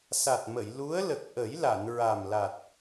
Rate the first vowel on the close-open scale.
open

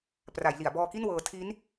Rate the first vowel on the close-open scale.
open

